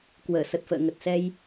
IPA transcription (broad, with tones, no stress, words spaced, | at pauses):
kwəː˧˩ sə˨˩t̚fə̰ː˧˨ ŋə˨˩t̚sɛ˧j